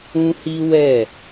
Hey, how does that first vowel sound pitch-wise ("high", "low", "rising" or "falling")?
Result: high